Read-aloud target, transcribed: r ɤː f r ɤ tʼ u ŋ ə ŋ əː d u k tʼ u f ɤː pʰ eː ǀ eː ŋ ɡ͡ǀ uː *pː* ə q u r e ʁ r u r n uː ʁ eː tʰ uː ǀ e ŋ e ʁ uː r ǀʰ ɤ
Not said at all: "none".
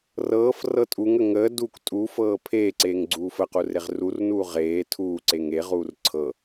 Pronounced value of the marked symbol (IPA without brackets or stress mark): f